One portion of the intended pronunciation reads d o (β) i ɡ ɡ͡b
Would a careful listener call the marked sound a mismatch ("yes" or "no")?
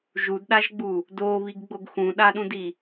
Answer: no